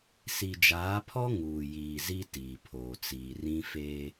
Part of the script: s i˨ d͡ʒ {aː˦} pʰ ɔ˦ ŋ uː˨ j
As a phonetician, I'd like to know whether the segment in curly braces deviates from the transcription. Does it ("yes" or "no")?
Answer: yes